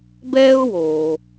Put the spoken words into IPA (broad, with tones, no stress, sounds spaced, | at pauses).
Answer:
b ɛː˥ ʊ̯ w oː˩